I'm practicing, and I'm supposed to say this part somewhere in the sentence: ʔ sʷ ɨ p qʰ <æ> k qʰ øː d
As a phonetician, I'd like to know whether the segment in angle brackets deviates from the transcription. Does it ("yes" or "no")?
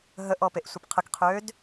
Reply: yes